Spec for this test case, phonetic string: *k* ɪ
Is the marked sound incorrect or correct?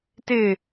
incorrect